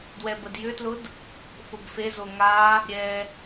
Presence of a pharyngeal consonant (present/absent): absent